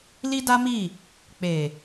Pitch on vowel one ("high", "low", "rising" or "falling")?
high